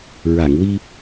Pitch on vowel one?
low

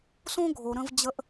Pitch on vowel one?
high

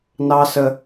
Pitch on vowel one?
high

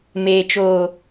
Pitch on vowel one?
low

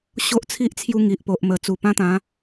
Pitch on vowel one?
high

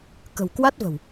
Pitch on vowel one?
low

